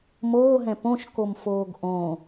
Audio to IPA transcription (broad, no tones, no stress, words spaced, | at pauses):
moːɦɛ̃ põʃkomfoːɡ ʔõ